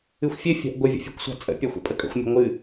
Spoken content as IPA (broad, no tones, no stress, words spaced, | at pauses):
ɨxʷfʲɘ fʲa̤ʔɡʷə vʲə̰fʲɛ̤kʷsʷa̤t͡sʼə̰ pʲaxʷə̰pʼəkʼə̰xʷ mʲə̤ŋʷɨ